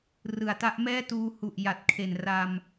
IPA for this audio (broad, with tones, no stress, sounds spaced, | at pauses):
r ɯ˩˦ a̯ t a˦˥ ʔ m ɛː˥˩ t uː˧ h u˨˩ ʔ j a˨˩ t̚ kʰ e˨˩ n r a˧ m